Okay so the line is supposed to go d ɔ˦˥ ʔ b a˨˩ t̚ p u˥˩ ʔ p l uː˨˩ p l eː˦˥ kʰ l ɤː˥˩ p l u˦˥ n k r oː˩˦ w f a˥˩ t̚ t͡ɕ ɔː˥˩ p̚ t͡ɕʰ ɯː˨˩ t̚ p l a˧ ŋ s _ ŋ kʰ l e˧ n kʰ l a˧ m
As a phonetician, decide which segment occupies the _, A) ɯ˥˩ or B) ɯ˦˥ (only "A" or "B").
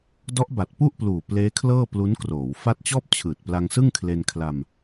A